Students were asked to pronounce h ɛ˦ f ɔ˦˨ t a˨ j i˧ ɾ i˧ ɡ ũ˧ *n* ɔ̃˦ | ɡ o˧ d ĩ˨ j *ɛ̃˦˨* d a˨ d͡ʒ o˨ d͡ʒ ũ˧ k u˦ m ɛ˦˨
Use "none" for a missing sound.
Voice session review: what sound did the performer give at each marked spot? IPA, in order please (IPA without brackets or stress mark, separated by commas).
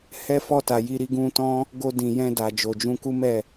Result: t, ɛ̃˧